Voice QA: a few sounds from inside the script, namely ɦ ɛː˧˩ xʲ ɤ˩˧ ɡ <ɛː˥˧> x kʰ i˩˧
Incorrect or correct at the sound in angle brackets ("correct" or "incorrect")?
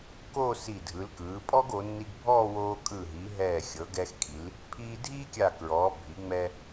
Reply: incorrect